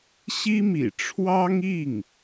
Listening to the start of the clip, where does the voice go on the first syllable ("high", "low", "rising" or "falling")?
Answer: high